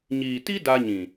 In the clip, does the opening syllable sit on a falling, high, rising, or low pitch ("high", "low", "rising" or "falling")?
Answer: low